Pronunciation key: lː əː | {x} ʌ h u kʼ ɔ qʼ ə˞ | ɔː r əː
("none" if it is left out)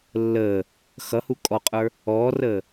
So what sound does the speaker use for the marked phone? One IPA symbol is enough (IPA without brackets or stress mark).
x